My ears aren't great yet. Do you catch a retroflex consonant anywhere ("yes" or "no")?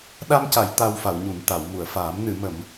no